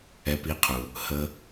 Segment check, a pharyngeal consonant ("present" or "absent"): absent